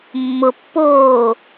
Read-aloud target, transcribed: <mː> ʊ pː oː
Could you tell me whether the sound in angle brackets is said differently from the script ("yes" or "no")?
no